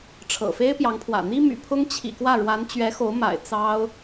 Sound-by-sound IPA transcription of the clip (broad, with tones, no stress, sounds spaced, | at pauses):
ʈ͡ʂʰ ɤ̰˨˩ f e˥ ɪ̯ p j ɑ˧˥ ŋ pʰ w ä̰˨˩ n̪ i˥ m y̰˨˩ pʰ ʊ˥ ŋ t͡ɕʰ ḭ˨˩ k w ä˥˩ ɻ w a˧˥ n t͡ɕ ɥ ɛ˧˥ x o˧˥ ʊ̯ m a̰˨˩ ɪ̯ t͡s ɑ˥ ʊ̯